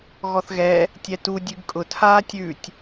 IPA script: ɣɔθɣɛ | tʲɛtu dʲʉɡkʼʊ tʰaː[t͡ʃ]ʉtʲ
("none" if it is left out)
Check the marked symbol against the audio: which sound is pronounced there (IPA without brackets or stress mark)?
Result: tʲ